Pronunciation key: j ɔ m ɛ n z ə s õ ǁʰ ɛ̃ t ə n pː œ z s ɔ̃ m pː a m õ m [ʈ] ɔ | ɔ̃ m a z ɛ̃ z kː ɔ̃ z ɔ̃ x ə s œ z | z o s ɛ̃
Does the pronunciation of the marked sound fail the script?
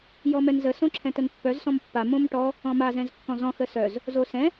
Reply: no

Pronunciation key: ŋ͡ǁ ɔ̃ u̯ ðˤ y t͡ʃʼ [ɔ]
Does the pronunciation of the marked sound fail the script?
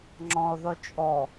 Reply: no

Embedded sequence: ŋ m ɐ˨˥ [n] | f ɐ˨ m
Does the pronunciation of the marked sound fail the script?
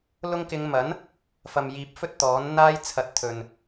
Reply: no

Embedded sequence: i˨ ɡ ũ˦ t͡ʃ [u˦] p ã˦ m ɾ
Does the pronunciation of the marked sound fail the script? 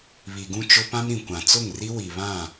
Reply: yes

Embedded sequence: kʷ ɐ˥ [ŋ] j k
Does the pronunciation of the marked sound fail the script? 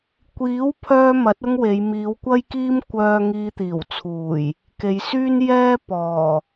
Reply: yes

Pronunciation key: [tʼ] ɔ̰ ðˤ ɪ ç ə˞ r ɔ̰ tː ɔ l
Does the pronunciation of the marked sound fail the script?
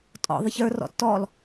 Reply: no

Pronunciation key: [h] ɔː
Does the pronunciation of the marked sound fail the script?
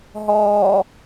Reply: yes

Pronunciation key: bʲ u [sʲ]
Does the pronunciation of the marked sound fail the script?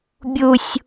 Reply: no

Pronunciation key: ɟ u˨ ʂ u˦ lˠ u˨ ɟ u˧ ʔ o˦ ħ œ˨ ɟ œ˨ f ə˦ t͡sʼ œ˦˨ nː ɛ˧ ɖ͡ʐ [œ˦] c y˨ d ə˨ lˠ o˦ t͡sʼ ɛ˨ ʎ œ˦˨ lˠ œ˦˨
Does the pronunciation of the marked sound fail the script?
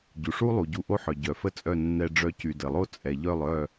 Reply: yes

